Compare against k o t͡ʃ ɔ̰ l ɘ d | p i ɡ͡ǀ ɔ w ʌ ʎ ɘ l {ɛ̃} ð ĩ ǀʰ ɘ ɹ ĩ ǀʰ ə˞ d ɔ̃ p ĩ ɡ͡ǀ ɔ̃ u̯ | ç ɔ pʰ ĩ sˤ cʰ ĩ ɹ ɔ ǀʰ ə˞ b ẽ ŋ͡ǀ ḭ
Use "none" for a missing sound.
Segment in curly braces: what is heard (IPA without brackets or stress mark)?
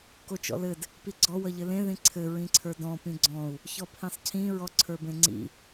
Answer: ẽ